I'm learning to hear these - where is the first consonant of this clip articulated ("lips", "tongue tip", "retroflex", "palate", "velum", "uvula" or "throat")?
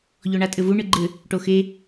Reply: palate